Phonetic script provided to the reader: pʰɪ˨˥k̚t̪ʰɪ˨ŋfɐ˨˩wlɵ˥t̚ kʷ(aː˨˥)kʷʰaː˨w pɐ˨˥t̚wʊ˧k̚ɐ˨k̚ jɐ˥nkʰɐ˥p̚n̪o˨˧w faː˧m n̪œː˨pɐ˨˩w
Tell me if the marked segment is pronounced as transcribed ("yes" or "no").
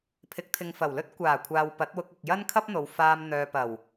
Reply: no